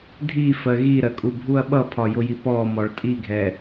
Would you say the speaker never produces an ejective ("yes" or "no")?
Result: no